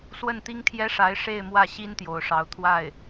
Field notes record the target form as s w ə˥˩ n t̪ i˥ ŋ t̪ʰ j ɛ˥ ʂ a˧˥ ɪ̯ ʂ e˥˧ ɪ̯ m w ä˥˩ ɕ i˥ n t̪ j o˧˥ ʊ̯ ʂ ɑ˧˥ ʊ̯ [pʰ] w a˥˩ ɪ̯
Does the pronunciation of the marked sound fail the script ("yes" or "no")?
yes